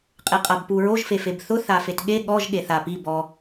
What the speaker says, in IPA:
qʼ e qʼ a b p u ɹ o ʒ f e f e b θ ʊ θ a f e t ɠ e ɠ ɔ ʒ ɠ e θ a p i b ɔ

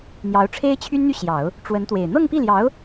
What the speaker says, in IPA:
n̪ j ɑ˧˥ ʊ̯ ʈ͡ʂʰ e˥ ɪ̯ t͡ɕʰ y˥ n n̪ y˥˩ ɕ j ɑ˨˩˦ ʊ̯ | ʈ͡ʂ w ə˧˥ n t̪ w e˨˩ ɪ̯ n̪ ɤ˥˧ ŋ p i˥˩ l j ɑ˧˥ ʊ̯

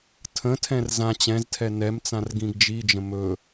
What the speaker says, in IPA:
tʰ ə̃ tʰ ɛ̃ r z ã t͡ɕ ɛ̃ z tʰ ɛ n ɛ m t͡s ã r ɡ ĩ ɡ d͡ʒ i d͡ʒ ə̃ m ɵ

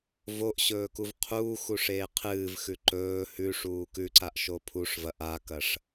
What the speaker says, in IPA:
v o ʔ ɕ ɵː k u v qʰ uː x u ʂ eː qʰ ɨː v x ʉ ǃ ɵː h ʉ ʂ uː k ʉ ǀ a ʔ ʃ o pʰ u ʂ v ɐ ʔ a k ɐ ʂ

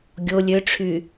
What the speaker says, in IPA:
ɡʲ o lʲ ø ʈ͡ʂʰ y

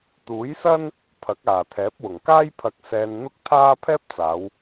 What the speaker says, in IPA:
t̪ uː˨˥ j s ɐ˥ n | pʰ ɐ˨˥ k̚ aː˨˩ t̪ʰ ɛː˨˥ p̚ w ʊ˨˩ ŋ k aː˥ j pʰ ɐ˧ k̚ s ɛː˧ n n̪ ʊ˥ k̚ t̪ʰ aː˥ pʰ ɛː˥ p̚ t͡s aː˨˧ w

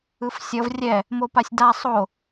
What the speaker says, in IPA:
ɯ f sʲ ʌ v rʲ ɛ | m o p a sʲ d a sˤ o

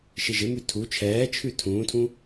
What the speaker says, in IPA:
ʃ ɪ ʒ ɪ m ʉ tʰ u t͡ʃʰ ɛː t͡ʃʰ ʉ tʰ ũː tʰ ũ

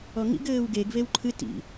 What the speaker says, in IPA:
ɔ ŋ ḭ ɡ ɘː w ɡ e ɡ v e w ǃʰ ɨ t ḭ

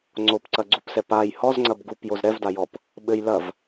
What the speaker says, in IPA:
ŋ͡ǀ o p ǀ ɐ ɡ͡ǀ u p s ɛ p a j h ɔ z ŋ͡ǀ ɐ b ɡ u p j o z ɾ ɛ v d a j ɔ p | ɓ ɘ j l ɐ v

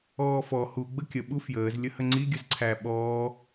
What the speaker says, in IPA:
ɔː f ɔ h u ɡ͡b ə kʲ ə ɓ u f j əː z lʲ ə h ə ŋ͡ǀ i ɡʲ ə z ǀʰ æ ɓ ɔː

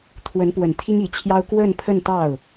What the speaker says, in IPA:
t̪ʰ w ə˧˥ n p w ə˨˩ n t̪ʰ i˥ ŋ i˨˩ t͡ɕʰ j ɑ˥ ʊ̯ k w ə˥˧ n pʰ ə˥˧ n t̪ ɑ˥˩ ʊ̯

